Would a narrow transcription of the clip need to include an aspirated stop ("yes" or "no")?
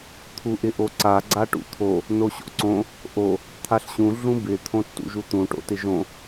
yes